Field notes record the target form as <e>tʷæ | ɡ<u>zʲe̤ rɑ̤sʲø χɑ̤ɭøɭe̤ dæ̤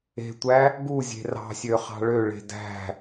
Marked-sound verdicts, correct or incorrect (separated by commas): incorrect, correct